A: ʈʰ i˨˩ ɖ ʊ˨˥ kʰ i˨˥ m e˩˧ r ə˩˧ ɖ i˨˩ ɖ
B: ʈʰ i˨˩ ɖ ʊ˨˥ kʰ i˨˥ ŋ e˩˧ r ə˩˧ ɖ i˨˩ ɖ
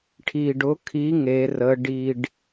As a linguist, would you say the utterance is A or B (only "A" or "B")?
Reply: B